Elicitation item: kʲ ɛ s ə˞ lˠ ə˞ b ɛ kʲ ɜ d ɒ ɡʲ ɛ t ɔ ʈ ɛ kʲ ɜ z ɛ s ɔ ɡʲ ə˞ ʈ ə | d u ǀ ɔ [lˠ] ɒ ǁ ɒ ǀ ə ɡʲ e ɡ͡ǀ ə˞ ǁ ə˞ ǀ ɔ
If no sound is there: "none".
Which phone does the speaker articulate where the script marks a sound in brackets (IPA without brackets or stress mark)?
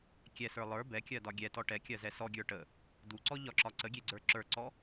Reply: ʎ